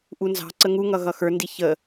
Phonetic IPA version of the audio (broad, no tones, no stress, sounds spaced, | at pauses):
ʔ u n z ɑ̤ ǀ ə ŋ u ŋ ʌ ɣ ʌ x ə˞ n d i ç ə